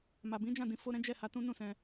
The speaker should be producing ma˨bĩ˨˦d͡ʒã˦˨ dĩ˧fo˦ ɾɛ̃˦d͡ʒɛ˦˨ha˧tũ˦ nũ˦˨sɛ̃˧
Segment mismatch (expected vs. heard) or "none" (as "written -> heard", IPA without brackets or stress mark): none